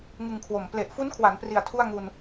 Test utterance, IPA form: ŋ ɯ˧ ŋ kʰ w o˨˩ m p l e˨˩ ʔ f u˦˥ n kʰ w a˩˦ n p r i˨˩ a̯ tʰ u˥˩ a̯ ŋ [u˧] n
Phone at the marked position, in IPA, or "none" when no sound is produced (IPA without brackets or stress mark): u˧